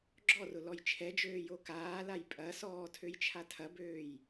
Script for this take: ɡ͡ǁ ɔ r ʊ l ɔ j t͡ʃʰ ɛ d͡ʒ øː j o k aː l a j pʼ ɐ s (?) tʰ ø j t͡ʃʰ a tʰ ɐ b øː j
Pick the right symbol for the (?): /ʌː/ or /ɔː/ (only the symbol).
ɔː